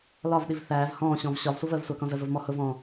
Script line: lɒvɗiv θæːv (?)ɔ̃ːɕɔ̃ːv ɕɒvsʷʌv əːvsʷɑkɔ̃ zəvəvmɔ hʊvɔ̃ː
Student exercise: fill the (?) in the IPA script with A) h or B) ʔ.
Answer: A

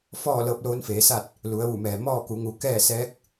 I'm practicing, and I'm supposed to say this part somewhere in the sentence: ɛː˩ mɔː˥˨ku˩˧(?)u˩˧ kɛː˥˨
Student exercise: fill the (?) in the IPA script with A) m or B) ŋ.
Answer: B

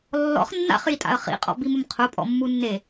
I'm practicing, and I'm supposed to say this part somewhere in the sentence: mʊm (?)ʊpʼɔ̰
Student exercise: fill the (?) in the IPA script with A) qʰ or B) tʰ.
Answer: A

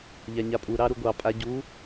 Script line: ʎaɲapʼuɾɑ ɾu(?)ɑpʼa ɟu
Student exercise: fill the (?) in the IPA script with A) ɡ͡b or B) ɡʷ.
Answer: B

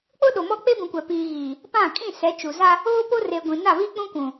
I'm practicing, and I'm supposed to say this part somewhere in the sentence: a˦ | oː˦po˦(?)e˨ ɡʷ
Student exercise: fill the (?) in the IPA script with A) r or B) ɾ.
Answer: A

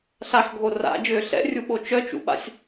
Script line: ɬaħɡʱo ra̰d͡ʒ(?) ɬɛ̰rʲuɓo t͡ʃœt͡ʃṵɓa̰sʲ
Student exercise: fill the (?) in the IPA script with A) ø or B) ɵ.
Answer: A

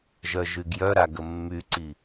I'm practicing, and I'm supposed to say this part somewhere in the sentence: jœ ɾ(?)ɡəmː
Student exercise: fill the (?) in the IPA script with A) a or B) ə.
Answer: A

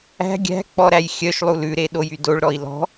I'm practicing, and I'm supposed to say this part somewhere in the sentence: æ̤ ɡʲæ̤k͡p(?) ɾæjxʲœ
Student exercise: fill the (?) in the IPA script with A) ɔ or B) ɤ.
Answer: A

